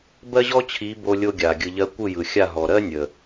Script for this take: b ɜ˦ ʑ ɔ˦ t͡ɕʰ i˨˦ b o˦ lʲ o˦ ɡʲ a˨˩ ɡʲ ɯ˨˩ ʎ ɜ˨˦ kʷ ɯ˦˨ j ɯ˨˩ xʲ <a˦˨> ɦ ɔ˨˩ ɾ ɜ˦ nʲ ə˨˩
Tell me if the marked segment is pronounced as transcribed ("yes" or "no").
yes